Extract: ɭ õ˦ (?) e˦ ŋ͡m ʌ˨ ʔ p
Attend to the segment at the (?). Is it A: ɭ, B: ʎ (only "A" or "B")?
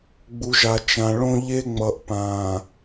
B